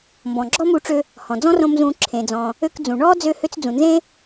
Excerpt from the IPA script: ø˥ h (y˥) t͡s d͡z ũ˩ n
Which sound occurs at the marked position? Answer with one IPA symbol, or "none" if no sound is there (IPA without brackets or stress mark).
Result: ø˥